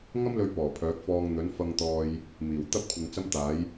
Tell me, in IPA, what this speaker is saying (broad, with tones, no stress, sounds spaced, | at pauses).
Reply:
ŋ ɐ˥ m l ɵ˧ ɥ p ɔː˨˩ pʰ œː˨˥ k̚ f ɔː˧ ŋ n̪ ɵ˨˥ n f ɐ˧ ŋ t̪ ɔː˧ j | m iː˨˩ w t̪ ɐ˥ p̚ kʷʰ ɪ˨ ŋ t͡s ɐ˥ m t̪ aː˨˥ j